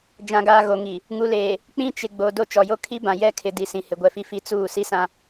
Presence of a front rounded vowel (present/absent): absent